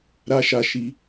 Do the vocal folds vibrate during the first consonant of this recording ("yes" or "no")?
yes